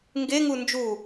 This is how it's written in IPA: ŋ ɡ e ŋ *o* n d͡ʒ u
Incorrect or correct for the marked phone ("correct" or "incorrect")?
incorrect